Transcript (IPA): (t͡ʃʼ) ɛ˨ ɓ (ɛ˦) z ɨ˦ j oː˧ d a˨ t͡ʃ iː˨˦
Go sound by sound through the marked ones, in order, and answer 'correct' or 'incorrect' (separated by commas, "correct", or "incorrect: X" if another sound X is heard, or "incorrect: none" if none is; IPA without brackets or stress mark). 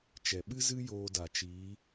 incorrect: t͡ʃ, incorrect: ɨ˦